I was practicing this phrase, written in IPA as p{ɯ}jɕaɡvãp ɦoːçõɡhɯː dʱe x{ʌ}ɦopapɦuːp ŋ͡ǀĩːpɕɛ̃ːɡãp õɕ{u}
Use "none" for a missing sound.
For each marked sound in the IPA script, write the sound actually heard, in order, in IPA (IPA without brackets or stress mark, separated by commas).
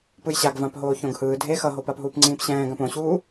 ɯ, ʌ, uː